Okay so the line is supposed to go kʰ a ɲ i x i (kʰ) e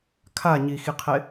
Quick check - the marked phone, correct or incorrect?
incorrect